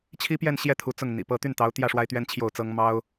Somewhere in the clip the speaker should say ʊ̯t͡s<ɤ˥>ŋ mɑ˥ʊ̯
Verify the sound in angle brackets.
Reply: correct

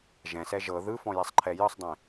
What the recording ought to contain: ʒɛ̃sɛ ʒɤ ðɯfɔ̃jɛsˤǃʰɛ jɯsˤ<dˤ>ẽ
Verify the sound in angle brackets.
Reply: correct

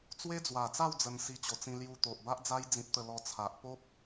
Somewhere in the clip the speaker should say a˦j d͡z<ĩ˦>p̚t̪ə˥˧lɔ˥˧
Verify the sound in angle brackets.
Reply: correct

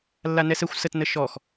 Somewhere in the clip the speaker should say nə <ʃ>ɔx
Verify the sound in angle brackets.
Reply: correct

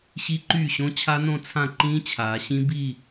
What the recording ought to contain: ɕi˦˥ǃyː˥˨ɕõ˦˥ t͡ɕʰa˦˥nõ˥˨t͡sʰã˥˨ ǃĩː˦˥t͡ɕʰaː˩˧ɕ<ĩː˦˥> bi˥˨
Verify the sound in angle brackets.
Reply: incorrect: ĩ˦˥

